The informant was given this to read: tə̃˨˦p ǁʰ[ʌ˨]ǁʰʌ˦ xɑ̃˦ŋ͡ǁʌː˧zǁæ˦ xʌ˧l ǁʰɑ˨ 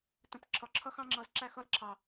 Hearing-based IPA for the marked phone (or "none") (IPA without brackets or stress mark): ɒ˨